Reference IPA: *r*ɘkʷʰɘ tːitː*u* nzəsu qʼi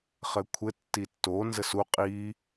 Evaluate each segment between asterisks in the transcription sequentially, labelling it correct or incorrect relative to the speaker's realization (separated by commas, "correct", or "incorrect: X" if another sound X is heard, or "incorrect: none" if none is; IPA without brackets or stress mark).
incorrect: χ, incorrect: o